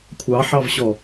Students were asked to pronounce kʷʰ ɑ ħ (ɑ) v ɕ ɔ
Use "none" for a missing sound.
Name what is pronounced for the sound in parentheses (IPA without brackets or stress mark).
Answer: ɑ